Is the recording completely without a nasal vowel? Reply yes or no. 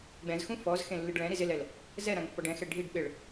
no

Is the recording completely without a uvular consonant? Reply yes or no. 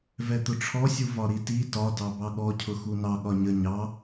yes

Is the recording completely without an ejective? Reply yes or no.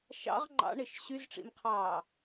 yes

